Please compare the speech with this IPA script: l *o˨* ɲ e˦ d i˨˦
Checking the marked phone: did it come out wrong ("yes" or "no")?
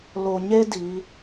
no